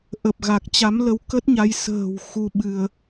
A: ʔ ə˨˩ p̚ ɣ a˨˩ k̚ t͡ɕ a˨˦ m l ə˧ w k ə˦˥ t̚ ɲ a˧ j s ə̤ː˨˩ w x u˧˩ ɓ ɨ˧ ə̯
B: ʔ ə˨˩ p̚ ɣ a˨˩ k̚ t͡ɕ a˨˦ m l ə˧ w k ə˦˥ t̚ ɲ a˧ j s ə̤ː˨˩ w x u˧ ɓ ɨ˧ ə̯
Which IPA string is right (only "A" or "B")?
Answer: B